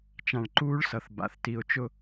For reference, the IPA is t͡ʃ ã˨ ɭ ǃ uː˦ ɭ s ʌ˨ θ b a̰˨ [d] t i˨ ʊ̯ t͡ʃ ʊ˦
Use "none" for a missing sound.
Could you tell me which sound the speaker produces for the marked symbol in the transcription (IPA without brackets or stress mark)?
θ